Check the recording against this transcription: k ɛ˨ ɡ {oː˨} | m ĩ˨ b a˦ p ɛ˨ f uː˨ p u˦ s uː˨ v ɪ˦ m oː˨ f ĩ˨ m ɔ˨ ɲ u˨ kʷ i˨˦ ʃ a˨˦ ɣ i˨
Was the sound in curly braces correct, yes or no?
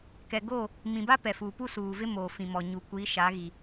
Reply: no